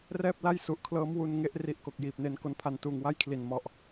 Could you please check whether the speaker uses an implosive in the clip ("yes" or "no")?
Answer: no